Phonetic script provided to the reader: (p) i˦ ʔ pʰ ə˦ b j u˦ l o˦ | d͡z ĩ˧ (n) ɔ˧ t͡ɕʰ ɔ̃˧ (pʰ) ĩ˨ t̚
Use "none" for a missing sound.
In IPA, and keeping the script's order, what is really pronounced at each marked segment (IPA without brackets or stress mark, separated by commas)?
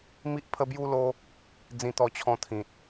m, t̪, t̪ʰ